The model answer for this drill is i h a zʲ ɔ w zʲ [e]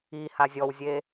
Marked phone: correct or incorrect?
correct